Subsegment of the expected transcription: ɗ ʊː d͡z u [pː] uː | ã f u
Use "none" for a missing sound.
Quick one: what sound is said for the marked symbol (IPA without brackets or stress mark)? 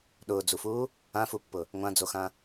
f